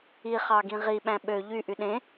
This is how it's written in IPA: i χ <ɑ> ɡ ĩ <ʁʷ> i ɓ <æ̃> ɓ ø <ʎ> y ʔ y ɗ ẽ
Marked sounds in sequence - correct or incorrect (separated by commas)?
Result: correct, incorrect, correct, correct